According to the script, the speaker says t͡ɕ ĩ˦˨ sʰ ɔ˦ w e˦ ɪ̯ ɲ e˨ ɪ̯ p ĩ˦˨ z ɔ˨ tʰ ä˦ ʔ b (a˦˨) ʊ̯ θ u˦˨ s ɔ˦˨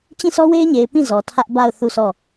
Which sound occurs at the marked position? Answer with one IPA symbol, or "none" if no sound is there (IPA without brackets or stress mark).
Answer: a˦˨